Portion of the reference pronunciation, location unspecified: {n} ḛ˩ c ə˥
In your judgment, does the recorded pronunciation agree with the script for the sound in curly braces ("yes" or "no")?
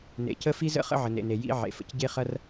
yes